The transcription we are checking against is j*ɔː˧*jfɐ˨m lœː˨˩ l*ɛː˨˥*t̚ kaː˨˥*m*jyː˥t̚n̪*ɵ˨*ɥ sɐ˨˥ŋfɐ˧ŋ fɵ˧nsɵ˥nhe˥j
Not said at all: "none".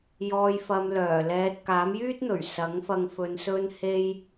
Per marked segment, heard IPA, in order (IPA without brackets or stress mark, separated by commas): ɔː˨, ɛː˨, m, ɵ˨˩